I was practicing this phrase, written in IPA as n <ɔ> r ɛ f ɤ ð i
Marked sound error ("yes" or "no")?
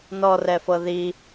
no